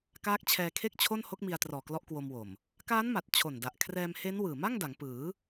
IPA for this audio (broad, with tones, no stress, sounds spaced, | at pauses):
k aː˦˥ k̚ t͡ɕʰ ɛː˧ kʰ e˥˩ k̚ t͡ɕʰ o˥˩ n h o˦˥ k̚ m i˧ a̯ t r ɔː˨˩ k l ɔ˦˥ ʔ k w o˧ m w o˨˩ m | k aː˦˥ n m a˨˩ t̚ t͡ɕʰ o˨˩ n d a˨˩ ʔ kʰ r ɛː˧ m h e˦˥ n w ɯː˨˩ m a˥˩ ŋ d a˩˦ ŋ p ɯː˩˦